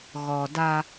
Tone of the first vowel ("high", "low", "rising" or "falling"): low